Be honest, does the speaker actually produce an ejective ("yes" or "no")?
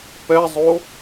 no